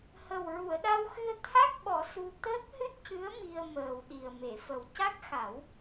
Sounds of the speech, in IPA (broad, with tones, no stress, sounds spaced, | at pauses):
h ə˨˩ w ɹ u˨˩˨ ə̯ ɗ a˧ w x ɨ˧ ə̯ t̪ʰ a˦˥ k̚ ɓ ɔ˨˩˦ s u˧ t̪ əː˦˥ k̚ h ɨ˦˥ t̚ c ɨ˧˥ ə̯ m i˧ ə̯ m əː˨˩ w ɗ i˨˩ ə̯ m e˨˩˨ f ə˨˩ w c a˦˥ k̚ x a˨˩˦ w